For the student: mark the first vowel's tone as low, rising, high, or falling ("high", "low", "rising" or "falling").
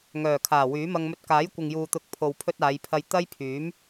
low